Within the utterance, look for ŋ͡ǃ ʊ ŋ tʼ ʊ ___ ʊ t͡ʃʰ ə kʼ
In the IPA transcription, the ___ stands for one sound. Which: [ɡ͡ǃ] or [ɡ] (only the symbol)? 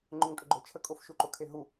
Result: ɡ͡ǃ